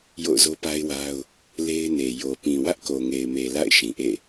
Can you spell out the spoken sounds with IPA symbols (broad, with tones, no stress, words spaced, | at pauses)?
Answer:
jo̰˦˨ʊ̯zo˦pa˦ɪ̯wa˦ʊ̯ | le˦ɪ̯ne˨ jo˨pĩ˨ wä˦ʔko˨ŋe˨ɪ̯me˨ la̰˦˨ɪ̯ ʃĩ˨ʔḛ˦˨